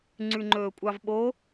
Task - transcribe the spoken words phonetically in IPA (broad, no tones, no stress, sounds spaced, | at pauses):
ŋ͡ǀ ʉ ŋ͡ǃ ɵː kʷʼ ɑ v ɓ o